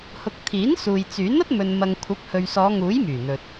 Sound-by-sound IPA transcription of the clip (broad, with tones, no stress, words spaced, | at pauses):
hʊ˨k̚ t̪ʰiː˨˥nsuː˨jt͡syː˨˥nɐ˥t̚ mɵ˨nmɐ˨ŋkʷʰɐ˨˥p̚ hɵ˨ɥsɔː˨˧ŋuː˨˥j myː˨˩n̪ɵ˨t̚